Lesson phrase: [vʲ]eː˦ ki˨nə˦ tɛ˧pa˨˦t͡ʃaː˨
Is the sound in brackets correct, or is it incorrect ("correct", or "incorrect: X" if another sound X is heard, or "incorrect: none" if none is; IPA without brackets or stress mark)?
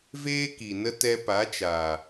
incorrect: v